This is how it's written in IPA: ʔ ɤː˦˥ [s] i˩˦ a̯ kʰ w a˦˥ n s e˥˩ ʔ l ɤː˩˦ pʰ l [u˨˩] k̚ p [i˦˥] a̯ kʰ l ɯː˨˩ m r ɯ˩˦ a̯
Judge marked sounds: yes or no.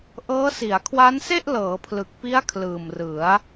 yes, no, yes

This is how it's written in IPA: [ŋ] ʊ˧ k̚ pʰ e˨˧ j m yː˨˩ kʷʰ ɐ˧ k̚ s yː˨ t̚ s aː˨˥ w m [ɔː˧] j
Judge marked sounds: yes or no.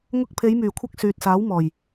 yes, no

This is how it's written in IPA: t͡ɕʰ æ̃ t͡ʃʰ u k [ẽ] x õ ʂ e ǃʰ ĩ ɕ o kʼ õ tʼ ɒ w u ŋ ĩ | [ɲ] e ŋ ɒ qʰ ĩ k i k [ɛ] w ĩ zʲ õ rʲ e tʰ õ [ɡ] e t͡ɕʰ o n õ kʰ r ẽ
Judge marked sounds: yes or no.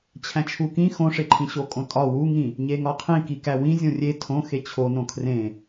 no, yes, no, no

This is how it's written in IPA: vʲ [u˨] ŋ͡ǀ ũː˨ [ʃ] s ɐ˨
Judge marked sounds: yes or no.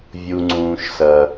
yes, yes

